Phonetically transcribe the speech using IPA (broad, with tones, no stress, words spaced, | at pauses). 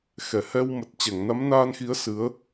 xɛ˧˩hɛ˧wmə˨˩t̚t͡ɕɛ˧˩ŋ na˨˦mnaː˧nxi˨˦ə̯ sɨ˨˦ə̯